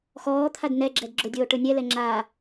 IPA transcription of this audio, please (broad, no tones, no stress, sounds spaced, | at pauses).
x ɔː t̪ʰ a d n ɛ ɡ͡ǁ ɛ d ɡ͡ǁ ʊ dʲ oː ʈ ʊ nʲ ɛ l ɛ ŋ͡ǁ a